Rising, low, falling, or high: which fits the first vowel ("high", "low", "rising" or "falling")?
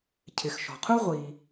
low